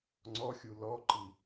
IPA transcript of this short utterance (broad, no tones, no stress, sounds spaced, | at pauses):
ŋ͡ǀ ɔ xʲ u l ɔ ǃ i